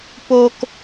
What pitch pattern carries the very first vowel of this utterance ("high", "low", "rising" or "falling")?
low